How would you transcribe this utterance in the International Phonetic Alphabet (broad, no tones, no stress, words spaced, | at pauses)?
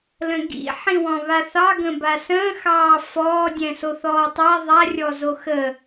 lə̃ɡḭ ħĩwɔ̃βaθɑ ɡə̃basə̃ː xɑːfɔː dʲɛ̃soθɔːtˤa ðˤa rʲɔzoxə